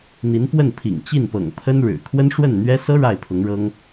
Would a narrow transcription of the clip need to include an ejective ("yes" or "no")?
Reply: no